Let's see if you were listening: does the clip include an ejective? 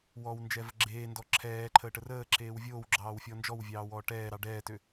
no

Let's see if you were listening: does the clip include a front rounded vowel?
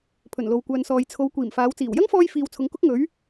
yes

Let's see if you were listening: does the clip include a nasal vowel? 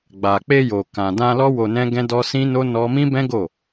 yes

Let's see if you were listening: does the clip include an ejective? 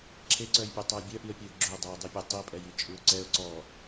yes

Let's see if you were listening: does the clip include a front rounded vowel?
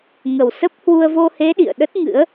no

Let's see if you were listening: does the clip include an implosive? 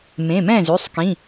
no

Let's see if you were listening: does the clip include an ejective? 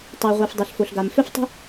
no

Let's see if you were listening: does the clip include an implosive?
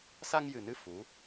no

